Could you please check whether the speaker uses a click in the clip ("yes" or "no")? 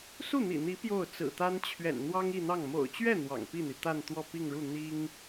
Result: no